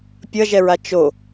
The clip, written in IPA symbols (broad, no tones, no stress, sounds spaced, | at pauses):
pʲ ʌ ʒ ɛ ɹ a t͡ʃ o